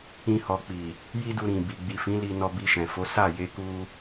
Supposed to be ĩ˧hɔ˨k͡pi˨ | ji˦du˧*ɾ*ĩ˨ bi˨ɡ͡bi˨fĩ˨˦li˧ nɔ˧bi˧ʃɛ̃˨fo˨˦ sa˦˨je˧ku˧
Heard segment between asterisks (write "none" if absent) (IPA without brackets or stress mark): ɾ